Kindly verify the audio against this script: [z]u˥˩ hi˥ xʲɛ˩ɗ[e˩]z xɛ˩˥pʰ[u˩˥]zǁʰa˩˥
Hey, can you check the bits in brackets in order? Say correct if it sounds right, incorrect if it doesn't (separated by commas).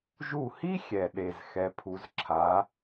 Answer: incorrect, correct, correct